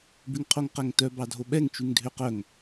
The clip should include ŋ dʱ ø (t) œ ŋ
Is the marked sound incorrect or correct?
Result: incorrect